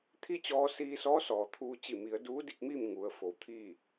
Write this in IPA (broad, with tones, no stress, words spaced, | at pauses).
t̪ʰi˥˨t͡ɕɔː˧siː˧sɔː˧˥ sɔː˩t̪ʰuː˧ t͡ɕi˧˩mi˩˧ə̯ duː˧˥di˥˨k̚miː˥˨m ŋu˩˧ə̯ fo˩˧wt̪ʰiː˥˨